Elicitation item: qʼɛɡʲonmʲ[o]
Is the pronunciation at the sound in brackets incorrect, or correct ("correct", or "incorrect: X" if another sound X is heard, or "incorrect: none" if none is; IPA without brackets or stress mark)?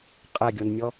incorrect: ɔ